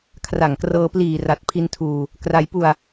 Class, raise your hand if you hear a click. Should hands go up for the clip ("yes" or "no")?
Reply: no